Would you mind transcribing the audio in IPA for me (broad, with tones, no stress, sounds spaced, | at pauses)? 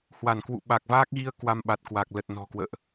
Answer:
h w a˧˩ n k w ṵ˧˨ ɓ a˨˩ k̚ v aː˦˥ k̚ ɣ i˧ ə̯ k w a˧ m ɓ a˨˩ t̚ k w a˨˩ k̚ l ə˨˩ t̚ n ɔ̤˨˩ k w ə̰ː˧˨ ʔ